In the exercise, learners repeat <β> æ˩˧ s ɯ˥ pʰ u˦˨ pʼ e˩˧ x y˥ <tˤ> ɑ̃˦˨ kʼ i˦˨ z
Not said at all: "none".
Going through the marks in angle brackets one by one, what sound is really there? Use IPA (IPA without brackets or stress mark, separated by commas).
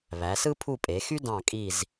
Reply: β, d